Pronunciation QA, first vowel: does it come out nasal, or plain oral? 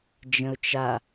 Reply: nasal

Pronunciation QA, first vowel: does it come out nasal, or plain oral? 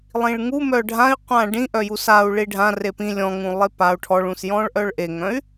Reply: nasal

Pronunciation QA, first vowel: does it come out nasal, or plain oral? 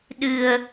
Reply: oral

